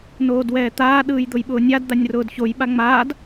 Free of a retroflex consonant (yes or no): yes